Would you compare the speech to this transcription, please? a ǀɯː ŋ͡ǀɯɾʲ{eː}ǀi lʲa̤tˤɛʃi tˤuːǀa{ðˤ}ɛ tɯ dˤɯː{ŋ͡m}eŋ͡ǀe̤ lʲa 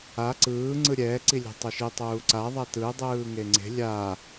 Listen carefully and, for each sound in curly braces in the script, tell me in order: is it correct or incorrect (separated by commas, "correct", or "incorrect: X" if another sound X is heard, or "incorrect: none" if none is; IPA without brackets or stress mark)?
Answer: incorrect: ɛː, correct, incorrect: ŋ